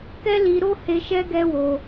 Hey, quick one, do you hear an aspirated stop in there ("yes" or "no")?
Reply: no